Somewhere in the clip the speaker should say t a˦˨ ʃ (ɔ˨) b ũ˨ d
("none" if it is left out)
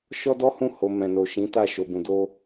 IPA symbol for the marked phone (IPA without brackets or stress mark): o˨